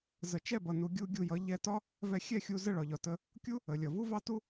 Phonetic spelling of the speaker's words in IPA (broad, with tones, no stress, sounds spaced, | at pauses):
z ə˨ t͡ʃ ɛ˦˨ b ʌ˨ n u˧ ɡʲ u˧ ɡʲ u˧ j ʌ˨˦ ʎ ɛ˧ t ɒ˦ | v ɛ˧ xʲ ɛ˦˨ xʲ u˧ z ə˦˨ ɭ ɒ˨ ʎ ɒ˨ t ə˧ | kʲ u˦ | ə˨ lʲ ʌ˨ v u˦ v ɑ˦ t u˦